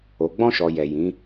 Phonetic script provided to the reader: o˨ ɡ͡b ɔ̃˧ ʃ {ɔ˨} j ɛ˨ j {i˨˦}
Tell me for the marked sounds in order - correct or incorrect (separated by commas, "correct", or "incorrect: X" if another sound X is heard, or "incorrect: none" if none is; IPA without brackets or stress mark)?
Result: correct, incorrect: ĩ˨˦